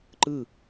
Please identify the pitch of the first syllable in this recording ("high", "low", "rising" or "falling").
falling